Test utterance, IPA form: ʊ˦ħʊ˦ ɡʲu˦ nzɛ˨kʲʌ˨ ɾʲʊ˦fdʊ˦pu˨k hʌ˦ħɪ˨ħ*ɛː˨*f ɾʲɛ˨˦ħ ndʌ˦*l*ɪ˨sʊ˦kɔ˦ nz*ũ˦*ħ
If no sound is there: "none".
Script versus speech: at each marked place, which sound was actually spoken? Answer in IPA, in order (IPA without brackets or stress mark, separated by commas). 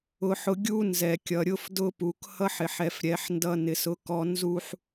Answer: ɛ˨, n, u˦